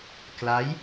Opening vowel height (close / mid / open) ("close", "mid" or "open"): open